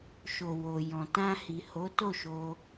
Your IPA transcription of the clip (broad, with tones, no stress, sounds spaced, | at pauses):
ʃ o˨ w o˨ j ɔ̃˨ t ã˧ h i˨ h o˨˦ t o˦˨ ʃ o˧